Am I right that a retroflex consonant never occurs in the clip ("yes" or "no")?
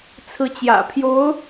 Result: yes